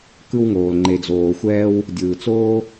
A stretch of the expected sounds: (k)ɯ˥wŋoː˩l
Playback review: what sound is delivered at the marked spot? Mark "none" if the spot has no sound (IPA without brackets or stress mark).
k